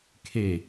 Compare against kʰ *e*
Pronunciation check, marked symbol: correct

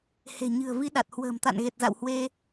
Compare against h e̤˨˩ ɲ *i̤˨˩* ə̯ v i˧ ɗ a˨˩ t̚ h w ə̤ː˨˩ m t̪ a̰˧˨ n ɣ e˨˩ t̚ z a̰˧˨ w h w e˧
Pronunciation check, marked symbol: incorrect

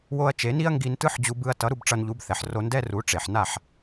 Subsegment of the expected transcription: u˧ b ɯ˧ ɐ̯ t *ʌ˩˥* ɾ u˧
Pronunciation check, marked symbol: correct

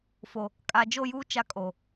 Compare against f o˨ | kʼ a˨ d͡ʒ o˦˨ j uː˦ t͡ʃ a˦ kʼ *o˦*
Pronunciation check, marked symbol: incorrect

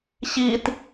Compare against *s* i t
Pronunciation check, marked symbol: incorrect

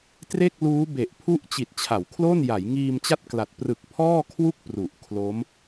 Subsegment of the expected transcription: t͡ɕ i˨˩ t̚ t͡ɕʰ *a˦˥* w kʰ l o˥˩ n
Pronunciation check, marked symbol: incorrect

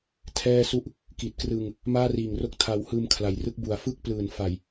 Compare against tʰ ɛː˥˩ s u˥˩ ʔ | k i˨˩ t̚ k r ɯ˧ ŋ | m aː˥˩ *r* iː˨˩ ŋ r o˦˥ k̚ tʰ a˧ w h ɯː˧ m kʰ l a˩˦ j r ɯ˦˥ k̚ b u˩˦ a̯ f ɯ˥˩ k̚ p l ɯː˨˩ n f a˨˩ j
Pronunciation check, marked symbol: correct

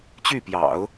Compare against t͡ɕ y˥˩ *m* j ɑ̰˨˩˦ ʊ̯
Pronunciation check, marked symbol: incorrect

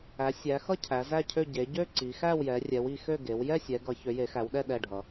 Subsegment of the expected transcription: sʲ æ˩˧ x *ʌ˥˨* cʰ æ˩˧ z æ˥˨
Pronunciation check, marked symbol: correct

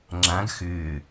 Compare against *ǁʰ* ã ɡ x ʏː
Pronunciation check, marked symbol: incorrect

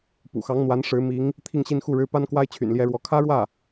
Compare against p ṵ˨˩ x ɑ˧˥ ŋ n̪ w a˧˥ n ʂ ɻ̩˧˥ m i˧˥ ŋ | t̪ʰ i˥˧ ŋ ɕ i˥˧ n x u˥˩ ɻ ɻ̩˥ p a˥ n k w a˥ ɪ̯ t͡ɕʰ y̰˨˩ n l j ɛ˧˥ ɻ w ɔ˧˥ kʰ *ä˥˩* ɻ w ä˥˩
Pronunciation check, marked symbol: incorrect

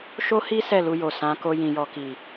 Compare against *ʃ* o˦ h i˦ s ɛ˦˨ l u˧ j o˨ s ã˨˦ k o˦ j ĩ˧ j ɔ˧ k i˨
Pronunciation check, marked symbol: correct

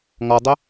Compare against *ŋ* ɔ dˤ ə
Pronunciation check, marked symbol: correct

